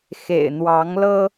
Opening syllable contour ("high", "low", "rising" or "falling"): low